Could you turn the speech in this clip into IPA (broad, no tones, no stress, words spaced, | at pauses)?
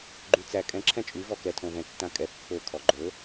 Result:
ɡ͡ǃyt͡sæ kʼɛ̃ ǁʰɛ̃t͡ʃʼy vɔkɛ tʰõvɛ̃ tːãkʼɛ pːɵ kʰɔɡ͡ǃɵ